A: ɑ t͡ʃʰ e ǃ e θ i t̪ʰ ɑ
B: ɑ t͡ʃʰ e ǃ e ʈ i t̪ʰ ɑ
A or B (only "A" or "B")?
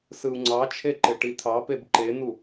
B